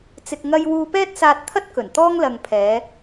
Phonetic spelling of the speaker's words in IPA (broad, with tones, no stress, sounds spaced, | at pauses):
t͡s ɪ˨ k̚ ŋ ɐ˧ j w uː˧ p ɛː˥ t̚ s aː˧ t̚ t̪ʰ ɐ˥ t̚ k ɵ˨˩ n t̪ ɔː˥ ŋ l ɐ˨ ŋ pʰ ɛː˨˧